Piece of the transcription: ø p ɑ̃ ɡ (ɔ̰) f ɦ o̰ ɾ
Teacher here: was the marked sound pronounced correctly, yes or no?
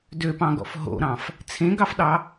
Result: yes